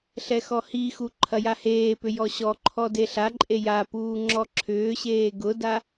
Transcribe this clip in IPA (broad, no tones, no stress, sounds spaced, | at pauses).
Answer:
ɬ ɛ x ɔ h i x u ǃʰ ɐ j a h eː p ʏ j ɔ ɕ ɔ ǃʰ ɔ d e ɬ a ǃʼ e j a p uː ŋ͡ǁ ɔ ǁʰ ʏː ɕ eː ɡ ʊ d a